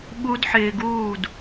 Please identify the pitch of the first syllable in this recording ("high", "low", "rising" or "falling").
high